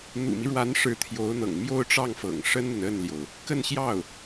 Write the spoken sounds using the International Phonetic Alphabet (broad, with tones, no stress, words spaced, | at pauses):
n̪ṵ˨˩mi˦ɻwa˧˥n ʂɻ̩˧˥ t̪ʰjo˧˥ʊ̯n̪ɤ̰˨˩ŋmjo˥˧ʊ̯ʈ͡ʂɑ˥˩ŋ fɤ̰˨˩ŋʂə˥nn̪ə˨n ə˥˩nljo˩ʊ̯ | kə˥˧nɕjɑ˥˩ʊ̯